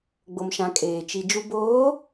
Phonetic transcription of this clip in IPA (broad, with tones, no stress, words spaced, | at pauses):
ɡ͡bo˨mʃã˨ kʼeː˨ t͡ʃi˨ d͡ʒu˨boː˨˦